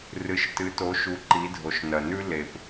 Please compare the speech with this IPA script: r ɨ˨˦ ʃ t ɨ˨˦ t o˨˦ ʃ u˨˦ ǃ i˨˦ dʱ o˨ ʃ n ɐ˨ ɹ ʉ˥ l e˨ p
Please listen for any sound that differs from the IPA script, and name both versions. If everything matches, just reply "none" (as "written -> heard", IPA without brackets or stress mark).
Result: ɹ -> n